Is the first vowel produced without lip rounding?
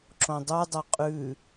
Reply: no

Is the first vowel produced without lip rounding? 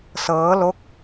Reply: yes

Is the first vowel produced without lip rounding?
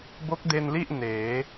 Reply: no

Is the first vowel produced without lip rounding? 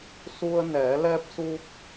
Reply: no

